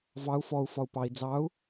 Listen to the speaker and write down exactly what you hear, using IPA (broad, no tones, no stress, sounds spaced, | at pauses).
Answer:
v ɑ u̯ f ɔ u̯ f ɒ u̯ p ɑ i̯ d͡z ɑ u̯